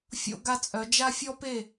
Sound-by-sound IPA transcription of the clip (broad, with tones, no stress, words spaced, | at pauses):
fʲo̰˥ɡa˥t͡sʼœ˧˥ d͡ʒa˥fʲɔ˥pe˥˨